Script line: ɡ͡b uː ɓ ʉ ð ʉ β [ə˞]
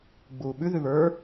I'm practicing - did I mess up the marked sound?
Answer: no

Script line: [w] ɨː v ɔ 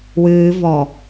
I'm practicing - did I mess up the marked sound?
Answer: no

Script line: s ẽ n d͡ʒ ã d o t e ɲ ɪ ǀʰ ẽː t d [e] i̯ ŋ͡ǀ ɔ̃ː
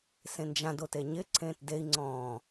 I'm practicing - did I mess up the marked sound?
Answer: no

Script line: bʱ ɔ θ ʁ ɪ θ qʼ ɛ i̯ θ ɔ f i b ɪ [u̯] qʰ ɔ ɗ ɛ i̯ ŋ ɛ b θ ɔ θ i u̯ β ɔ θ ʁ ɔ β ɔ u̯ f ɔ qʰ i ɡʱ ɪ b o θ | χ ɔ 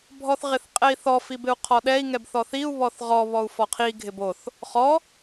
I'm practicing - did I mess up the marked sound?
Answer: no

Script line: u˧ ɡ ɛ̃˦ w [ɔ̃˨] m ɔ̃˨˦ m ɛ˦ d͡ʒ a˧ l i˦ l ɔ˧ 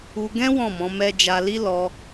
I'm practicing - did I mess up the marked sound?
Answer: yes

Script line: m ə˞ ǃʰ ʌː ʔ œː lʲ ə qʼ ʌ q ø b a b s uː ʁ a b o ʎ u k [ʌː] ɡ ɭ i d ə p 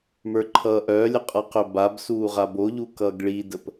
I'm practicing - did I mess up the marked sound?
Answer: no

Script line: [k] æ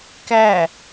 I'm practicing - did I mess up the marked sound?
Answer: no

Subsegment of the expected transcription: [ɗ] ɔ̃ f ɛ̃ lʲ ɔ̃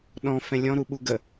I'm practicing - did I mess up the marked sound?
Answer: no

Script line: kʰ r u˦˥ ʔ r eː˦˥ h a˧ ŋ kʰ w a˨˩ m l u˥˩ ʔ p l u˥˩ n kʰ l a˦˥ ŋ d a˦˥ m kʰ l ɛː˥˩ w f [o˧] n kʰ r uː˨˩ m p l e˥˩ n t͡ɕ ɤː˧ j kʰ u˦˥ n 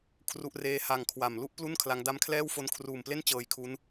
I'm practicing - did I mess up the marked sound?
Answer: no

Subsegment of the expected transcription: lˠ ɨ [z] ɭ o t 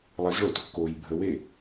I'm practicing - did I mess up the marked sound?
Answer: no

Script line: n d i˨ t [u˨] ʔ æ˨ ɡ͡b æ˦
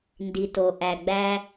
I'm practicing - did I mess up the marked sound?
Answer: yes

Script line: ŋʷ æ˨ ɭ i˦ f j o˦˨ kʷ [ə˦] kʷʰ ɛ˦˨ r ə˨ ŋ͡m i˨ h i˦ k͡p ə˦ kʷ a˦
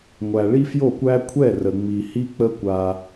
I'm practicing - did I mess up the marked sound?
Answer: yes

